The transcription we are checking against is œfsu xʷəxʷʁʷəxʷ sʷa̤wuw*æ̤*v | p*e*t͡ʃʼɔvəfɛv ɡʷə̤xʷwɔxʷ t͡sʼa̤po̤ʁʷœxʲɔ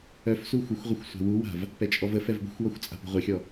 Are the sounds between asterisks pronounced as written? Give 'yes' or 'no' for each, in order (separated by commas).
no, no